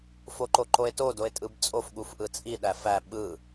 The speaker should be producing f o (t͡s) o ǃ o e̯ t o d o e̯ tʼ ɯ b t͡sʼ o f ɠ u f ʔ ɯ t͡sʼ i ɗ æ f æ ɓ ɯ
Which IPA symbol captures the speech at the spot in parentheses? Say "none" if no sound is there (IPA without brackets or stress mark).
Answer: ǃ